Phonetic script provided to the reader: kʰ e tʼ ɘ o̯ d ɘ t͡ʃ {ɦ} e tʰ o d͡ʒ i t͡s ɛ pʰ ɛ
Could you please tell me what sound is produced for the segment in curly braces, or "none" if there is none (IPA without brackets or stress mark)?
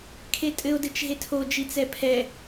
ɦ